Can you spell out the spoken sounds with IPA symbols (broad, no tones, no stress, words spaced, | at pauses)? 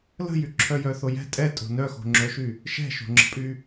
lə̤jyǁʰœ jœθojɛ̤ tʼɛtʼo̤ nœxo̤ŋ͡ǁœʃy | ʃɛ̤ʃo̤ŋ͡ǁə̤pʼy